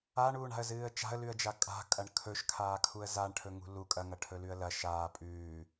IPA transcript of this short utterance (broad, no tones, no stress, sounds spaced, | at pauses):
a ɳ uː ɳ a̤ ə̯ z ɨː ə̯ t͡ʃ a̤ ə̯ l ʉ ə̯ d͡ʒ a kʼ a̤ kʼ ɐ ɳ kʰ ɵ ʃ kʰ aː kʰ u ə̯ z a ɳ ʈʰ ɵ ŋ ṳ l u kʼ ɐ ŋ ɐ ʈʰ ɵ l ʉ ə̯ l ɐ ʃ aː pʼ ʉː